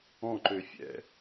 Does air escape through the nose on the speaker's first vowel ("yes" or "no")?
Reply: yes